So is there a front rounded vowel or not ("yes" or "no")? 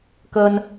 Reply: no